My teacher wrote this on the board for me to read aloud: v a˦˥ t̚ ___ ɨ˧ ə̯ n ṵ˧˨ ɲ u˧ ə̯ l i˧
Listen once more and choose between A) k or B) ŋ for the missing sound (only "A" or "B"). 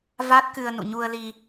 A